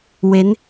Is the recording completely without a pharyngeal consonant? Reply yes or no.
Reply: yes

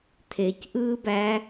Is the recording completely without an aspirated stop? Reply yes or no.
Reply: no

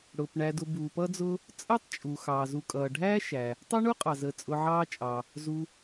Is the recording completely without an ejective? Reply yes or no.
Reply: no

